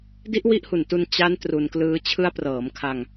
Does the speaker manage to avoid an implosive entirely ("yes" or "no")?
yes